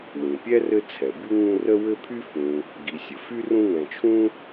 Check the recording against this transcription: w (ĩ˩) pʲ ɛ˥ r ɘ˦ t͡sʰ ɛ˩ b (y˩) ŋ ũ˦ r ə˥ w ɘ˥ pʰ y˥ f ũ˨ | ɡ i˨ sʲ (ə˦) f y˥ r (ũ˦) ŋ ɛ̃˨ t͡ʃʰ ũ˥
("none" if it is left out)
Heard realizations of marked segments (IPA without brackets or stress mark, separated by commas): ĩ˩, y˥, ə˩, ũ˦